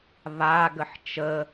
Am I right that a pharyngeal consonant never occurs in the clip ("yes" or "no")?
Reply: no